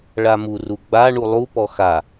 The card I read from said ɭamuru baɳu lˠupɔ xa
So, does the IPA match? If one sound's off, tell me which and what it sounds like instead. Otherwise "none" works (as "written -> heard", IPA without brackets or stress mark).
b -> ɡ͡b